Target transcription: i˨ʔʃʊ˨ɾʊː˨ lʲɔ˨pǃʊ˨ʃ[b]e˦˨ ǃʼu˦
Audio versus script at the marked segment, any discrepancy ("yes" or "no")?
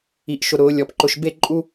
no